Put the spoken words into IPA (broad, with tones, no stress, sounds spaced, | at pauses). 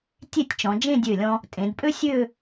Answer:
tʲ e˥˧ tʲ t͡ʃ ɔ̃˩˧ d͡ʒ ẽ˥˧ dʲ ø˧˩ lʲ ɔ̃˧ | tʼ ẽ˩˧ d pʼ ø˥ sʲ ø˥˧